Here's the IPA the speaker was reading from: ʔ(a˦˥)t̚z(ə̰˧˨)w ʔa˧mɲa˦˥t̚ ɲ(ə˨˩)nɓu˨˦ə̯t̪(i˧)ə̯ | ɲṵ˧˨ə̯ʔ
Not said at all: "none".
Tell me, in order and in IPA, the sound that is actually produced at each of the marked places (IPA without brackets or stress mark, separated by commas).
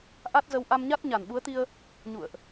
a˦˥, ə˨˦, a˨˩, i˧